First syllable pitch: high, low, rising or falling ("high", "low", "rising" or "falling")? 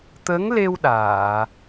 rising